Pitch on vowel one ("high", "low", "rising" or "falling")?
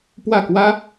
falling